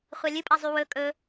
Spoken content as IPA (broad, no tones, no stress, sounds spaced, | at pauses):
χʷ a lʲ ɨ pʼ a zˤ y w ɵ kʼ ɵ